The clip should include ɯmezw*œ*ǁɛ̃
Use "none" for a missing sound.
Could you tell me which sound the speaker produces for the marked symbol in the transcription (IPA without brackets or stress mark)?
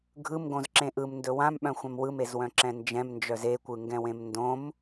œ̃